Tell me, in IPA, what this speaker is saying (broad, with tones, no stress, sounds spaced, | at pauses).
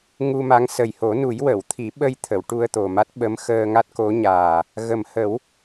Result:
ŋ u˧ m a˧˥ ŋ s ə˨˩ j h o˨˩˦ n u˨˩˦ j w ə˨˩˨ w t̪ʰ i˨˩˦ ɓ ə˧ j t̪ʰ ə˨˩˨ w ʈ u˧ ə̯ t̪ o˨˩ m a˦˥ t̚ ɓ ə˧˥ m x əː˧ ŋ a˦˥ t̚ k o˧˥ ɲ aː˨˩ | ɣ ə˨˩ m h ə˨˩˦ w